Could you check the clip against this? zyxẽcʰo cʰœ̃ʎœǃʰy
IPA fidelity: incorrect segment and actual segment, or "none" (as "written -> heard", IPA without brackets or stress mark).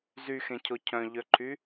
none